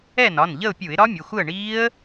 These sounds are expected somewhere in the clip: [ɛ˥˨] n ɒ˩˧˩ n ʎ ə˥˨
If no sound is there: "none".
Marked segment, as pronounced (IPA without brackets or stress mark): ɛ˥˨